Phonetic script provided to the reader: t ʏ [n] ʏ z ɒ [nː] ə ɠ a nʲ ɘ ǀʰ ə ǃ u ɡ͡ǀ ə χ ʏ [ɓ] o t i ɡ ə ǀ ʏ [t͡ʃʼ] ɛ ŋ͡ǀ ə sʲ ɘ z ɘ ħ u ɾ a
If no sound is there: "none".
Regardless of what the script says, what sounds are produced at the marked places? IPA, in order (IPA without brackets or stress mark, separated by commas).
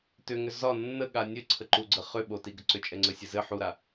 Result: ŋ, nː, ɓ, t͡ʃʼ